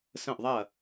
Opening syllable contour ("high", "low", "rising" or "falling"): falling